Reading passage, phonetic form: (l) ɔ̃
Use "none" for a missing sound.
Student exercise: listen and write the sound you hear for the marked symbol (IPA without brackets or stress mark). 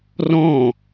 r